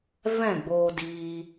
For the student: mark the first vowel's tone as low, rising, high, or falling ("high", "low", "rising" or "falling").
falling